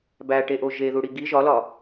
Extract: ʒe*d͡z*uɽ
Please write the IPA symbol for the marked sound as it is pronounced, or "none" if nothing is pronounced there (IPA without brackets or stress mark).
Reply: ð